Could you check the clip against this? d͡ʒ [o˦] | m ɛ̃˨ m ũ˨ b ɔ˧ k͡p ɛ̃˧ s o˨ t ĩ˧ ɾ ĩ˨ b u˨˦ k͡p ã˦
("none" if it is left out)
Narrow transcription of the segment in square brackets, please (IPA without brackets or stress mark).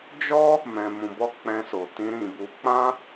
ɔ˦